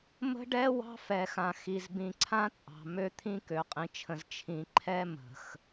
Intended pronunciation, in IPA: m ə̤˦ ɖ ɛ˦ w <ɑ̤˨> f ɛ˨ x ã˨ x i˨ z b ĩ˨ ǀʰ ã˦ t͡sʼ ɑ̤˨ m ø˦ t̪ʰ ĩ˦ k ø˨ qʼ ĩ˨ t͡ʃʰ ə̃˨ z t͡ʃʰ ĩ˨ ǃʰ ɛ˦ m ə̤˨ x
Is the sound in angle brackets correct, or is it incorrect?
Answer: incorrect